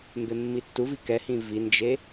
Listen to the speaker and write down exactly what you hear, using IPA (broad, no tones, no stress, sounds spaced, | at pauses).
m b e mː i tː u v i k ɛ h ĩ v i n d͡ʒ e